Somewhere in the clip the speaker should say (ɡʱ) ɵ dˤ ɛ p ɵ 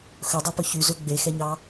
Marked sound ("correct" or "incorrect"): incorrect